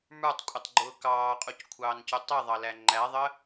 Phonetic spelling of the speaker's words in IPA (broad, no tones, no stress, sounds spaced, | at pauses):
m ə˞ tˤ kʷʼ ʌ tˤ ɡ͡ǃ ʊː k ɑː qʼ u c kʷʰ ɑː n c ʊ tˤ i ðˤ ɑ l æ ŋ͡ǃ æ ðˤ ə